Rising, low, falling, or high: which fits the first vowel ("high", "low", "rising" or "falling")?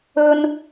high